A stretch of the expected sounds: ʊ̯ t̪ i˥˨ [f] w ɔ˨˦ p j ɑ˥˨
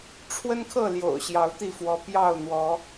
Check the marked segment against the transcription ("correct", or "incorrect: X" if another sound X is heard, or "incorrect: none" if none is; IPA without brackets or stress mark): correct